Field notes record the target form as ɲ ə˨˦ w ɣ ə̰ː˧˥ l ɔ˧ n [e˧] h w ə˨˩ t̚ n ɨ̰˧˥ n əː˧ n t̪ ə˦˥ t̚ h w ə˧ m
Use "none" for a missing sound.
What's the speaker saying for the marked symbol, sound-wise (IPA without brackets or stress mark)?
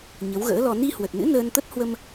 i˧